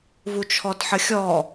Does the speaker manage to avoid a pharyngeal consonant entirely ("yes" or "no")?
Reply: no